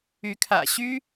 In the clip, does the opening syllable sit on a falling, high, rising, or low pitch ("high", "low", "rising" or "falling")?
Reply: rising